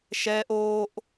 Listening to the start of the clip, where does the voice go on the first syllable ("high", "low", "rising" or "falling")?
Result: high